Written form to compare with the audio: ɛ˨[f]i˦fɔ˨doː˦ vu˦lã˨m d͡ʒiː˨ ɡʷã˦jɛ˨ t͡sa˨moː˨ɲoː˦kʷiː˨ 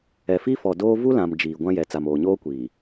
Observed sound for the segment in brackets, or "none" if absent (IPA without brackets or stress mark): f